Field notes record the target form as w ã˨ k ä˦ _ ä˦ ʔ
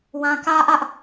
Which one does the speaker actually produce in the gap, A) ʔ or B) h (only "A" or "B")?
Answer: A